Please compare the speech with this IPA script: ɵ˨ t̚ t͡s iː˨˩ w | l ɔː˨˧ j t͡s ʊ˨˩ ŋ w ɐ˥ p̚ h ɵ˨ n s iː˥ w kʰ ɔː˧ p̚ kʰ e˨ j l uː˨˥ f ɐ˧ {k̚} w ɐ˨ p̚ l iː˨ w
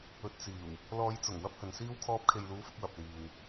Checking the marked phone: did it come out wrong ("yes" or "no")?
no